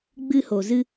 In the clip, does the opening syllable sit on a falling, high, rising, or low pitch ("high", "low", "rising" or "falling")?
high